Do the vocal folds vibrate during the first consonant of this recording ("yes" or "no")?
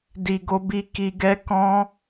yes